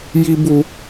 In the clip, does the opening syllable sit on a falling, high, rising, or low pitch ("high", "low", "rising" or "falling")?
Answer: high